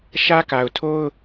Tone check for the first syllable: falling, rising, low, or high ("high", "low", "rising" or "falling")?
high